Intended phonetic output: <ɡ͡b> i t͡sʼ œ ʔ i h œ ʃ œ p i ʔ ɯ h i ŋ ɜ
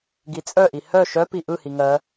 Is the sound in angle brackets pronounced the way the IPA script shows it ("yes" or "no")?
no